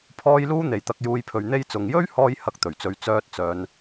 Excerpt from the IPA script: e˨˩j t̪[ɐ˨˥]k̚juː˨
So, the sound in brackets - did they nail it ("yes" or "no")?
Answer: no